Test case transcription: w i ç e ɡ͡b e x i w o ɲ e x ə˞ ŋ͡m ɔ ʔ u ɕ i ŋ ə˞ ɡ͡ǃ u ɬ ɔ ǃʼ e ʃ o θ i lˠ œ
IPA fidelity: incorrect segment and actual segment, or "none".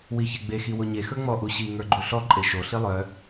θ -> ɬ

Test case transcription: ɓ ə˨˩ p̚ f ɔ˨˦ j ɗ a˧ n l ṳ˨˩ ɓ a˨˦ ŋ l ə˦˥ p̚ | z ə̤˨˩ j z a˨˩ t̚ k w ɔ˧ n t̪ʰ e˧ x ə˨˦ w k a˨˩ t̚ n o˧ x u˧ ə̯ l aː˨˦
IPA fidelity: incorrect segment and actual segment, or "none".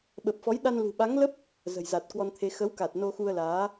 none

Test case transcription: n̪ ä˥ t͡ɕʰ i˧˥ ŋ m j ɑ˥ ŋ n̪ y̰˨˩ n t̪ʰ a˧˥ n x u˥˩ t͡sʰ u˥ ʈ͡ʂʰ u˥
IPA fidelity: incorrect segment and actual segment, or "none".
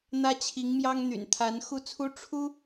none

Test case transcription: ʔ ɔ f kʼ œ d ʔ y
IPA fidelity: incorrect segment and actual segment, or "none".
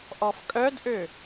y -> ø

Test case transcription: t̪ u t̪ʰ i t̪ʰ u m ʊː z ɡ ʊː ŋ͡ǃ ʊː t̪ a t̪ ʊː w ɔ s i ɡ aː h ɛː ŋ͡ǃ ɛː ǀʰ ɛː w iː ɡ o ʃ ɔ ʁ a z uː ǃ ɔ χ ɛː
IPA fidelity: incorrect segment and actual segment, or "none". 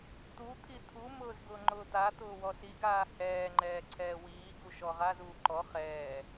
o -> u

